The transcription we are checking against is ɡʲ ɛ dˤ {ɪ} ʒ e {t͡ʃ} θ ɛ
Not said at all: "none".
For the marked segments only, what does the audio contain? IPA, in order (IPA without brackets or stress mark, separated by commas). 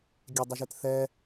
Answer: ɛ, t